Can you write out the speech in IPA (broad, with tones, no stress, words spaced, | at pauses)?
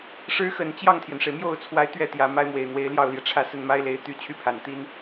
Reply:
ʂɻ̩˧˥xə˨˩n t͡ɕjɑ˥˩ŋt̪ʰjɛ˩nʂe˩ɪ̯ mjo˥˩ʊ̯t͡sʰwa˧˥ɪ̯t̪ɥɛ˥˩t̪jä˨˩ ma˥ɪ̯mwe˨˩ɪ̯n̪we˧˥ɪ̯ ljɑ˥˩ʊ̯ljɛ˩ʈ͡ʂʰä˥˧ sə˥˩nma˥ɪ̯le˧˥ɪ̯ t̪y˧˥ t͡ɕʰy˥˩pʰa˨˩n t̪i˥n